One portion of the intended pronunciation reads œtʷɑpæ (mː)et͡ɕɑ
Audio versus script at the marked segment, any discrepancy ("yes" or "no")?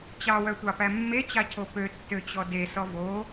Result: no